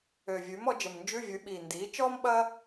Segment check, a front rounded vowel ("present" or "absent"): present